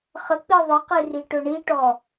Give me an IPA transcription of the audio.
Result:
χ ə k͡p i ðˤ ə q i r i ʈ ʊ ɳ i ʈ ɔ

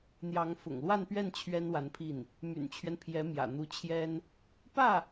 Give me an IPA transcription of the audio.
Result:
n̪ j ɑ˧˥ ŋ f ʊ̰˨˩ ŋ l w a˥˧ n p ɥ ɛ˥˩ n t͡ɕʰ ɥ ɛ˥ n w a˧˥ n pʰ i˥˩ n | m y̰˨˩ n t͡ɕʰ ɥ ɛ˦ n pʰ j ɛ˧˥ m j ä̰˨˩ n̪ u˧˥ t͡ɕʰ j ɛ˥ n | p ä˥˩

